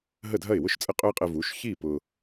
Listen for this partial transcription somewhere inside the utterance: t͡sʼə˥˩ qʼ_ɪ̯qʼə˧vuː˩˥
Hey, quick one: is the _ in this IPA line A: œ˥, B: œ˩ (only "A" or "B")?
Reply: A